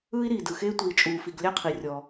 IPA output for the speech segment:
ɯː˦ i̯ ɾ iː˨ d ɯ˨ x eː˦ tʷ iː˨ t͡ʃʼ uː˨ f i˨ ɡ lʲ a˦ qʰ i˨ rʲ ɔ˨

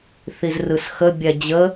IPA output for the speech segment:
θ i z r ɯ s x ə bʲ ɛ d͡ʑ ə

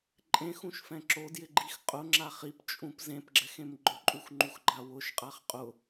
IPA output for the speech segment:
ǃʼ ẽ x ũ ʃ f ɛ̃ ǁ o d j ɪ ɡ͡ǃ i x qʼ ʊ ŋ͡ǁ a χ i p t͡ʃʼ ũ p z ẽ p ɡ͡ǁ ɛ x ẽ m ɡ͡ǃ ʊ ǃʼ u x ŋ͡ǃ u x ɡ͡ǃ a w ʊ ʃ qʼ a χ qʼ ʊ

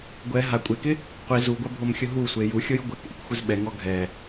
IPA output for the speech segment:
ɡʷ ɛ ɦ a kʷʼ e k ɪ | qʷ i z u ɡʷ a bʱ o m xʲ ʊ ɦ u sʷ e j u xʲ o j ɡʷ ɛ k ʔ ɪ k xʷ ɪ z ɓ ɛ ŋ ɔ ɡʱ ɛ

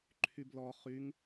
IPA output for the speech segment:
ǃʰ y b l ɔ χ y ŋ

